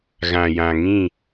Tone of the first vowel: low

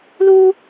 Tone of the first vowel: high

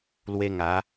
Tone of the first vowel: high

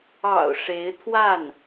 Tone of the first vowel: low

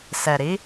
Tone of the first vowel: low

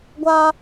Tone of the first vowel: high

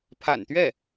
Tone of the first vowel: low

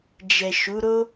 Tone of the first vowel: low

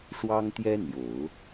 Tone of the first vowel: high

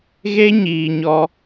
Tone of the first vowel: high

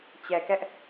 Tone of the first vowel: low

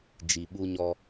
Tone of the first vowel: low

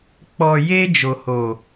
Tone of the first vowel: low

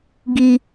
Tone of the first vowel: high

